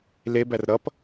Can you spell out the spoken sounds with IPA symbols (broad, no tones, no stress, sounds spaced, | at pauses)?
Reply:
l e b æ r ɾ ʌ p